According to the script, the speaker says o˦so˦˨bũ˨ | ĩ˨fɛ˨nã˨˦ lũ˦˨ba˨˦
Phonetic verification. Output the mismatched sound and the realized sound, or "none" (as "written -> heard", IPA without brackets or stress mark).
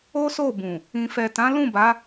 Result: n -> t